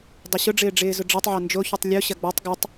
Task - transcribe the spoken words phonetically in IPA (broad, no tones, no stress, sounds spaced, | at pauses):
dˤ ʊ ɕ ʊ ɖ͡ʐ ɪː ɖ͡ʐ ɪː z ʊ ɖ͡ʐ ɐ tˤ ʕ ɐ n d͡ʒ o ç y tˤ lʲ o ɕ ɐ ɡ͡b ɔ tˤ ɡ ʊ tˤ